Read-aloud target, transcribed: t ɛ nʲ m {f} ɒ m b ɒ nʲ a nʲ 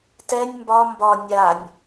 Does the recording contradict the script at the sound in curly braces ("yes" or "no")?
yes